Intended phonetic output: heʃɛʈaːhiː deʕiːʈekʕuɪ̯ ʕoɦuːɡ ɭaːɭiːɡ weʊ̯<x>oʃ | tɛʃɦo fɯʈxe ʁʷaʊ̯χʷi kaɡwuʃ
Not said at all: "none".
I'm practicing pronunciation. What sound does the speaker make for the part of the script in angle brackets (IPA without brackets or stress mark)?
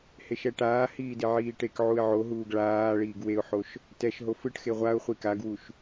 ħ